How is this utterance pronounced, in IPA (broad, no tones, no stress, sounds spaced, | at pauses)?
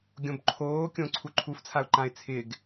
ɡʲ õ b ǃʰ oː kʲ õ ǀʰ u ǃʰ u f t͡sʰ a ʊ̯ ǃ ã ɪ̯ t͡sʰ ɪ ɡ